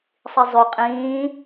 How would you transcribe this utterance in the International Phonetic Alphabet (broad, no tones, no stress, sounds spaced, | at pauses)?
sˤ i zˤ y qʼ ĩː